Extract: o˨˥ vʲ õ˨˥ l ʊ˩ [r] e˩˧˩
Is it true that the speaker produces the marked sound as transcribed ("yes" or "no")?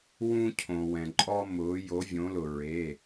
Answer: no